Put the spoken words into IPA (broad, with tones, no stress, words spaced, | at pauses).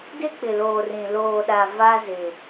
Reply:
dɪ˦ k͡pɪ˨loː˨rĩ˨ loː˨ɗa˨ va˦zɪ˨